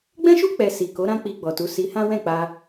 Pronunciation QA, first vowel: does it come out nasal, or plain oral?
nasal